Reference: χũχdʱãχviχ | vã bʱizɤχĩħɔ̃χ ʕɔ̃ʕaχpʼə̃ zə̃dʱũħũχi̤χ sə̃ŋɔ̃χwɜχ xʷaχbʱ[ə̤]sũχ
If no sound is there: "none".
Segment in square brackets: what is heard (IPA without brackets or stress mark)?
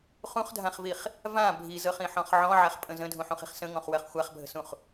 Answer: ə̤